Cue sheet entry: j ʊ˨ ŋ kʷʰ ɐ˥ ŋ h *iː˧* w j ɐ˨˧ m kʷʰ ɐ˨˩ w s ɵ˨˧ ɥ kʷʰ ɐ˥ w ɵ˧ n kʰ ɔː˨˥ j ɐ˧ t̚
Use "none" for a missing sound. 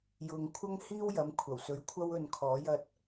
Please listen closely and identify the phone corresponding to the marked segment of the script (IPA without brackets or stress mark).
iː˥